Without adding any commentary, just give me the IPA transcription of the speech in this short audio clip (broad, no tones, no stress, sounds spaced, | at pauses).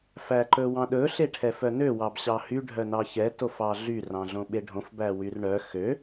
f æ ǃ ɵ w ɑ̃ ɗ ɵ ɬ e ʈʰ ɛ f œ n ø w ɑ b ɕ ɑ h y ɖʱ œ n ɑ ç ɛ t o f ɑ ɮ y r ɑ̃ ɮ õ ɓ e ɖʱ õ f b æ w y r ɳ œ x ø